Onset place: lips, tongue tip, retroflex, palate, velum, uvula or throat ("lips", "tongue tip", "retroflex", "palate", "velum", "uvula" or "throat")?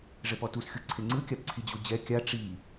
retroflex